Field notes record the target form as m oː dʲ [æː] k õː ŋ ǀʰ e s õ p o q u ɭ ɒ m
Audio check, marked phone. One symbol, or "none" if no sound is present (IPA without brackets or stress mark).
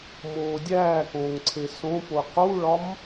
æː